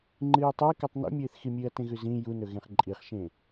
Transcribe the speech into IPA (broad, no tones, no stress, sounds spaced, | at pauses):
ŋ͡ǃ ɨː j tˤ ɨː k ʉ tˤ n ṵ mʲ ɨː θ x i mʲ ɨː ɐ̯ t ẽ ɣ ʉ z ĩ j u n ɵ ɣ ẽ χ ǃʼ i χ ʃ ẽ